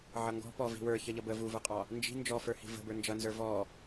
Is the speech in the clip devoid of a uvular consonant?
no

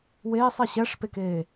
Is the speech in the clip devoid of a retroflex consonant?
no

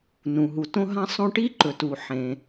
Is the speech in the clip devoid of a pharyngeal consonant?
no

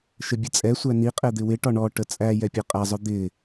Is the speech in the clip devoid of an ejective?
no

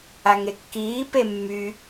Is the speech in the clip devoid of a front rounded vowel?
no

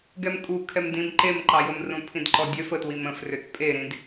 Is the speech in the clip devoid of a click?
no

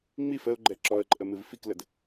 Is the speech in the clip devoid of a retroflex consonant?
yes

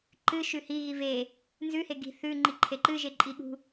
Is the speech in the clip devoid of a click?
no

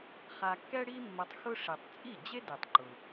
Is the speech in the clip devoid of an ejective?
no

